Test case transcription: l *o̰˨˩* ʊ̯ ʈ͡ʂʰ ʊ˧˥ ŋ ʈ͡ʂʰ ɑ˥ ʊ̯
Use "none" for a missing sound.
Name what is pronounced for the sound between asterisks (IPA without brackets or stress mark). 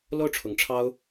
o˥˩